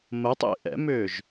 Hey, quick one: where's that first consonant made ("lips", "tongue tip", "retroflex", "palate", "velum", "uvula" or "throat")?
lips